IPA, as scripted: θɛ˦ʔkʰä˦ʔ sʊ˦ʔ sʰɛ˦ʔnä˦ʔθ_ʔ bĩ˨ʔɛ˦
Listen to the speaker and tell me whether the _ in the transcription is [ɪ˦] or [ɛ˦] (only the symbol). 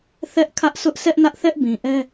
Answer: ɛ˦